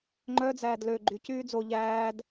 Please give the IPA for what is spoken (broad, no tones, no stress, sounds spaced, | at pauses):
ŋ͡ǃ œ d͡z æː d l ø ɡ͡ǃ y c yː d͡z o ʎ æː d